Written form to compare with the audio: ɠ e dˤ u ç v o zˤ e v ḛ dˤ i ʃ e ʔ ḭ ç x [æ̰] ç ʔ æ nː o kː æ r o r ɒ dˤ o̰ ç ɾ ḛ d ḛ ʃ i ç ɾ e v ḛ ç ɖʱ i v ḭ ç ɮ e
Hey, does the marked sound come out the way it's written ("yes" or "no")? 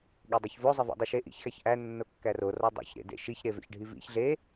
no